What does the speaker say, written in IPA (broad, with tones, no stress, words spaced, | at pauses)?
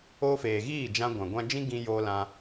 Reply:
o˧feː˨ɣiː˦˨ d͡ʒã˧ɡʷã˨ɡʷã˧d͡ʒĩ˦ ɡĩ˧joː˧lã˧